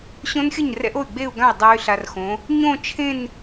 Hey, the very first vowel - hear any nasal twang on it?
yes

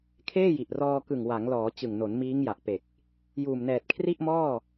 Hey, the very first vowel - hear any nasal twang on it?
no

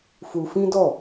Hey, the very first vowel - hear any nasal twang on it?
no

